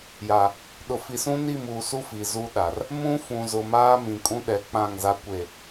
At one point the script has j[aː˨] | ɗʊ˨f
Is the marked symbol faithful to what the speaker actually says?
no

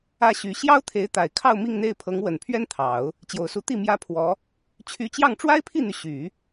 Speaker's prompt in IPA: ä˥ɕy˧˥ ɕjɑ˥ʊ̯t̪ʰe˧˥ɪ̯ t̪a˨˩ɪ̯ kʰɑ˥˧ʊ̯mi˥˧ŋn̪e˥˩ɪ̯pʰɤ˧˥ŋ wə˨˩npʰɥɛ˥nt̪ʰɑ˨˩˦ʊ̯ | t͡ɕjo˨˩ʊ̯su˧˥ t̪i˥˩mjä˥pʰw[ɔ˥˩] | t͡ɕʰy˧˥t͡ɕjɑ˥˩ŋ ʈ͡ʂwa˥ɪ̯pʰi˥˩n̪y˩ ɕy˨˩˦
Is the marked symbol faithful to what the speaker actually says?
no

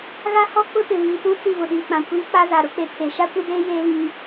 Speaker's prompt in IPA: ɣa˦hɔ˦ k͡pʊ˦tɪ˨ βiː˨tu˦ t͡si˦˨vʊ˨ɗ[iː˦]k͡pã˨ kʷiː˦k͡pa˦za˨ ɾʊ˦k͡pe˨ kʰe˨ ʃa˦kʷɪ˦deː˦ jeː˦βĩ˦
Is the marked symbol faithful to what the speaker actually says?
no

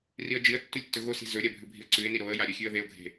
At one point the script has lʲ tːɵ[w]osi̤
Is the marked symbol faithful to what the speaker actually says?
no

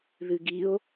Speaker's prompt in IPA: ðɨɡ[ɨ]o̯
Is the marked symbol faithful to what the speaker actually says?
no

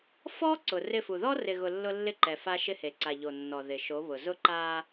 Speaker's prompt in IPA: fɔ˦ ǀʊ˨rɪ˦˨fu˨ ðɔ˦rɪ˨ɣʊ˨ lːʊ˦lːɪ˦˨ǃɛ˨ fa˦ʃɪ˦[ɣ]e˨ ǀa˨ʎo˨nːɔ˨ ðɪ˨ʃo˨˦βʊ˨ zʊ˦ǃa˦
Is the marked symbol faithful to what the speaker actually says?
no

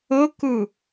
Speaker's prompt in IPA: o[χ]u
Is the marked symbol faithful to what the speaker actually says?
no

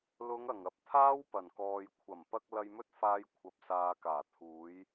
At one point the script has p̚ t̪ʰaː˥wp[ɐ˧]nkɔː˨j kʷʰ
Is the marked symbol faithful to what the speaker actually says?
no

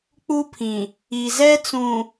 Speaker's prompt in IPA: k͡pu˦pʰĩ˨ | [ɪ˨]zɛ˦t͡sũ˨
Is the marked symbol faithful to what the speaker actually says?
no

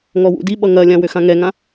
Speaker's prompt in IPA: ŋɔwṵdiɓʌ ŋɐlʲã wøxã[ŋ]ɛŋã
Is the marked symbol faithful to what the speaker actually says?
yes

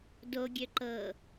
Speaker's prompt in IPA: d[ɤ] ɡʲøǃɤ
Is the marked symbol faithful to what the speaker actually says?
no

